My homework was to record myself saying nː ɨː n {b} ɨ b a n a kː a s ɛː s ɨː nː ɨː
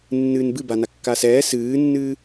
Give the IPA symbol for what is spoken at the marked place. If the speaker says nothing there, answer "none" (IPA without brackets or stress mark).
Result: b